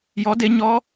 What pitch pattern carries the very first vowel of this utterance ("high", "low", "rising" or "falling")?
rising